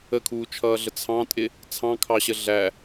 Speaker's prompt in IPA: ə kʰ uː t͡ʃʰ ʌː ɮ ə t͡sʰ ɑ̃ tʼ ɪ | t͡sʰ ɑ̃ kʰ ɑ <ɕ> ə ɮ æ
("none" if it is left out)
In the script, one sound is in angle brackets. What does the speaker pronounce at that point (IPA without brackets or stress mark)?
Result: ɕ